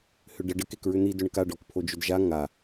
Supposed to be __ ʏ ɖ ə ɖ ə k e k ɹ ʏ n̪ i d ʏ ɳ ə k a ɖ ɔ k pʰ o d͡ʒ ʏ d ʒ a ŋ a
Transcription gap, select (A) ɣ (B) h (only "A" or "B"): B